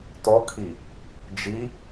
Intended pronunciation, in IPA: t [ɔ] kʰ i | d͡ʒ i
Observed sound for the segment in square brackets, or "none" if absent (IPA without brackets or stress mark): ɔ